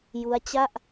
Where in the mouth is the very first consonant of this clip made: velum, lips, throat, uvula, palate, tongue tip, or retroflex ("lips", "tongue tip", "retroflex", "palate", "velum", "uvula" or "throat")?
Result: palate